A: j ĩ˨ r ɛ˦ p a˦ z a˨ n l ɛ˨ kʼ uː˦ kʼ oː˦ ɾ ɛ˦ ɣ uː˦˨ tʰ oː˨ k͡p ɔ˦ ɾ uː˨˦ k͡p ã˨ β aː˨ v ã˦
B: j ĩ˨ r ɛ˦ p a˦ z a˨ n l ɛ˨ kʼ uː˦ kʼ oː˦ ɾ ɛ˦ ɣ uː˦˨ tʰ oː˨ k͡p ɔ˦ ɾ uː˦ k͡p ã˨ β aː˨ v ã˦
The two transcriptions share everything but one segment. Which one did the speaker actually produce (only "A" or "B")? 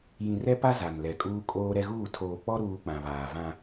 B